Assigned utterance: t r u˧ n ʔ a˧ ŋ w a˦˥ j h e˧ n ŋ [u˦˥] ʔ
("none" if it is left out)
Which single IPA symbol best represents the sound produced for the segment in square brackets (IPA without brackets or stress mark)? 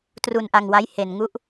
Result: u˦˥